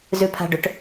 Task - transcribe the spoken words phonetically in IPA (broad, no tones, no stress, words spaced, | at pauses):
zʉpʰa̤ɖʏʈ